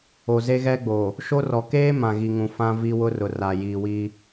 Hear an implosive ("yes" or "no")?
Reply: no